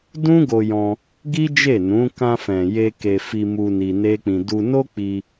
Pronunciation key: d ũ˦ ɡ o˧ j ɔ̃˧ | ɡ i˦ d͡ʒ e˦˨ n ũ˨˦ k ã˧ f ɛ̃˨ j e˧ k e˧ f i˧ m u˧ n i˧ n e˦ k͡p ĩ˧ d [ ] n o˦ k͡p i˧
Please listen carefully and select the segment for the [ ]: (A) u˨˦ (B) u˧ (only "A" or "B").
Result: B